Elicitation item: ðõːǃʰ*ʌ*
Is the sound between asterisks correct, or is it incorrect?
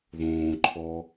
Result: incorrect